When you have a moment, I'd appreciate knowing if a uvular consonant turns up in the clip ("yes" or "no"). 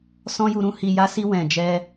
no